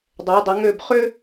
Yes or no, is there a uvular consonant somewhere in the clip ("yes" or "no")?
yes